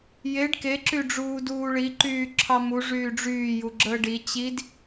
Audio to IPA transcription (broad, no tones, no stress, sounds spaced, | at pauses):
j e ɖ k e ǁ y ɖ͡ʐ uː d uː ɭ i ǃ yː ǁʰ ɑ m u ʐ yː ɖ͡ʐ yː j u ɡ͡ǁ əː ɖ i t͡ɕ i d